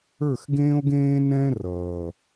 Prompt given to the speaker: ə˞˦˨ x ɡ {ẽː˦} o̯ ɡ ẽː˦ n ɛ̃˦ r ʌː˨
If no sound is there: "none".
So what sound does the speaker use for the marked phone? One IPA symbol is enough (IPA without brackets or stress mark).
ẽː˦